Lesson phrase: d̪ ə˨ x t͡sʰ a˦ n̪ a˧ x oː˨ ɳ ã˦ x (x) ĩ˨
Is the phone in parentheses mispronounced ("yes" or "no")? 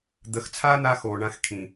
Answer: yes